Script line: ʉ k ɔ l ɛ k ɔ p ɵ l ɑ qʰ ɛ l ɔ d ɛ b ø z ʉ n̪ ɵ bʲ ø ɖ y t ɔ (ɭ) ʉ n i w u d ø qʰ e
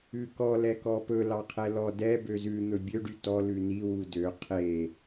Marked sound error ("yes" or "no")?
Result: yes